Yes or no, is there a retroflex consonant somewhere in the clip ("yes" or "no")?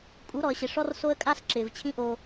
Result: yes